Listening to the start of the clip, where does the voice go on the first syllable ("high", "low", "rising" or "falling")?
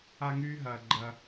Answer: high